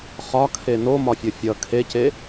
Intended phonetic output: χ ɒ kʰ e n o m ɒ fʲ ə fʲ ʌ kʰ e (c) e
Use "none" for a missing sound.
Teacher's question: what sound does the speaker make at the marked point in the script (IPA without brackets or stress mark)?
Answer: c